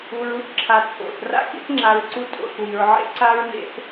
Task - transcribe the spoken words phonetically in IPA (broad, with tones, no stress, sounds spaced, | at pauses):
u˨ ɹ u˦ θ ǁʰ a˨ t͡sʼ o̰˨ θ r a̰˦ k ḭ˦ θ ŋ͡ǁ a˨ ɹ ǀ u˦ tʼ o̰˨ θ w i˨ ɹ ʕ ḛ˦ ǀ a˦ ɹ n ḛ˦ θ